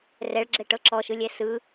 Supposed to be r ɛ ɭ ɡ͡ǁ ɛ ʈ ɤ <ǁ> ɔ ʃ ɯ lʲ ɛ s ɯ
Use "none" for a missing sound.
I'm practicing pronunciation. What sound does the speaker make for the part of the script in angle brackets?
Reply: ǁ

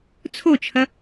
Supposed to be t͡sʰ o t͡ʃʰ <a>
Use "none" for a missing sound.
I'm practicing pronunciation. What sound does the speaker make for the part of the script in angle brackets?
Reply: ɐ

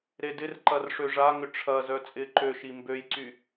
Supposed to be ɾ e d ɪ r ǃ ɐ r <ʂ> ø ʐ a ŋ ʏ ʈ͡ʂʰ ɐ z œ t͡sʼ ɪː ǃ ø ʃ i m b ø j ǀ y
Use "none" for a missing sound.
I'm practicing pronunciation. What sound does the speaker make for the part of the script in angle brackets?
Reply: ʂ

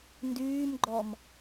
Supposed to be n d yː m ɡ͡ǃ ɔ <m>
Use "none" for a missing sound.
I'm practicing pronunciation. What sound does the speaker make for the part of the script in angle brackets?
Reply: m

